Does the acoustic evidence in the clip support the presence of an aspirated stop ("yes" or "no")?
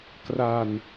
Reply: no